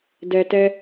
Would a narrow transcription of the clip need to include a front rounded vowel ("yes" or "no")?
no